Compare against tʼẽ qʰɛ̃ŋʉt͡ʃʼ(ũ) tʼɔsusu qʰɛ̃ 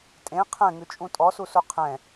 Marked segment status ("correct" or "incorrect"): correct